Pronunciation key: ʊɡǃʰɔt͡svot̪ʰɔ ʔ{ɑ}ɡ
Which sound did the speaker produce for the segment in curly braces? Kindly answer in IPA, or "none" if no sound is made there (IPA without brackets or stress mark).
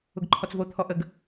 ə